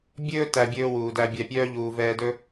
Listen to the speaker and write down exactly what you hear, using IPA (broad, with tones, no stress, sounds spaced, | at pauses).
bʲ ɵː˥ t æ˧ bʲ ɵː˥ w uː˩ d æ˧ bʲ æ˧ pʲ œː˥ ʎ uː˧ v ɛː˥ d ɵ˥